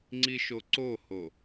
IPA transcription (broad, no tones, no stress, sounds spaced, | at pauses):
ŋ͡ǀ i ʃ o ǀ o h o